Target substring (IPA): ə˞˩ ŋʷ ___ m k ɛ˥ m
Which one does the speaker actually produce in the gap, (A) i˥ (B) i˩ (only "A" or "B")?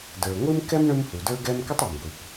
A